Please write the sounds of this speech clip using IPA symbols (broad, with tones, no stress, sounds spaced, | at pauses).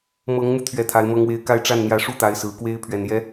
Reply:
m ɤ˧˥ ŋ m u˧ t̪ʰ ɥ ɛ˥˩ t̪ʰ a˧˥ ɪ̯ m ɤ˥ ŋ w e˥˧ ɪ̯ k a˥˧ ɪ̯ ʈ͡ʂ a˥˩ n n̪ j ä˧˥ ʂ u˥ t̪ a˧˥ ɪ̯ s ɹ̩˨˩ k w e˥ ɪ̯ pʰ ɥ ɛ˨˩ n j ɛ˧˥